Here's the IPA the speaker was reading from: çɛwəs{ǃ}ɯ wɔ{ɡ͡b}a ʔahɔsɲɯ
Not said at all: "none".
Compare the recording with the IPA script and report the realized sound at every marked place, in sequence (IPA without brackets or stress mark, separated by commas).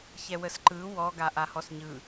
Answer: ǃ, ɡ